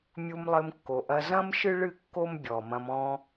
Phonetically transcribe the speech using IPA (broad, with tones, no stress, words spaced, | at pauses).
mʲu˧mlˠɘ˧mkːo˨ʔɐ˧ zɐ̃˦mʃɨ˦ɭɨ˦˨ kːo˦mbʲɔ˨mɐ̃˧m ɔ̃˧